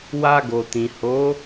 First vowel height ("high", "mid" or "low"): low